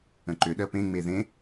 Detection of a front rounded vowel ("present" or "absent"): present